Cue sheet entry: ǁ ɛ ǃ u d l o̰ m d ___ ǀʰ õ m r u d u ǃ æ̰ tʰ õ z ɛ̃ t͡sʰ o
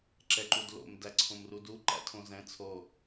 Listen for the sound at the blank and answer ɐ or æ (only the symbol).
æ